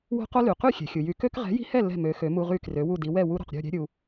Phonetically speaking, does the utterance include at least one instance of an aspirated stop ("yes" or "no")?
no